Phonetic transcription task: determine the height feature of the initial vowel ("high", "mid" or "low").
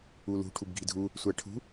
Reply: high